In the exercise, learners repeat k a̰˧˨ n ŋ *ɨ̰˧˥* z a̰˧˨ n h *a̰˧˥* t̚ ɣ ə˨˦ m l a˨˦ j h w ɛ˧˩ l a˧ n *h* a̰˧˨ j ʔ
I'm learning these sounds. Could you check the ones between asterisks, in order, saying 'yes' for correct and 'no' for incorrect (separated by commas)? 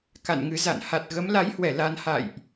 no, no, yes